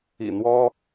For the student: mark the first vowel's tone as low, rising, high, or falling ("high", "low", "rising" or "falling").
low